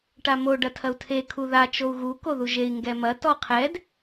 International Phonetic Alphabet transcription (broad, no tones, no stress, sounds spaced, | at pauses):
ʈ a m o ɖ ɐ tʰ ɐ u̯ tʰ e kʰ u ð a t͡ʃ o u̯ ɣ u k o ð u ʒ e i̯ ŋ ɡ ɛ m ɐ t ɔ qʰ ɛ d